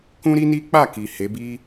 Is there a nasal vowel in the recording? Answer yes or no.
yes